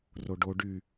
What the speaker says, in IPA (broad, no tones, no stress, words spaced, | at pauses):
roɖo ɖy